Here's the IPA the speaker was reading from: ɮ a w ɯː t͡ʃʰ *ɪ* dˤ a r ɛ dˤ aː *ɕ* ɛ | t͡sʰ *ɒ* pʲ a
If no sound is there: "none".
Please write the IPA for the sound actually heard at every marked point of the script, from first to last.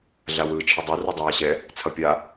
i, ɕ, ʌ

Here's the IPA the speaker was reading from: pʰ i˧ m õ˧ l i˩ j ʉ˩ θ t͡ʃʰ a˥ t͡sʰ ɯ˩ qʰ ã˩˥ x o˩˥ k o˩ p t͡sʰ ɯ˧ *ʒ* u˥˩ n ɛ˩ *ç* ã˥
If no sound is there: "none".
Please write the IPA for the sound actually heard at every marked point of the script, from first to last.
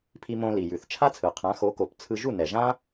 ʒ, ʒ

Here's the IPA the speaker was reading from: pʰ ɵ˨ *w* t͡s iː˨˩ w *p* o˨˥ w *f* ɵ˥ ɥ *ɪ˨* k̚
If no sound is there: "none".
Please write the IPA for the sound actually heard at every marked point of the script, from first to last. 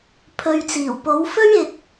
ɥ, p, f, ɪ˨

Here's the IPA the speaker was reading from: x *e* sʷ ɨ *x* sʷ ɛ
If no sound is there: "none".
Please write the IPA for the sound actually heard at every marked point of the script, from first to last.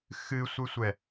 ɨ, none

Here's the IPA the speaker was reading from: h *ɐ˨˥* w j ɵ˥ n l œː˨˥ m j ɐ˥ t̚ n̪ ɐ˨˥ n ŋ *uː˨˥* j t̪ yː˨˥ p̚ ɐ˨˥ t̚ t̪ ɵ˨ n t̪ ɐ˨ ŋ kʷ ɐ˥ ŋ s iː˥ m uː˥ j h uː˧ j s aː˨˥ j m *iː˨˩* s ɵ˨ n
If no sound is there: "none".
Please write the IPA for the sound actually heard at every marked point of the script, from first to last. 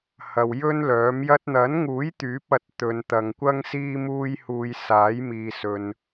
ɐ˨, uː˨˥, iː˨

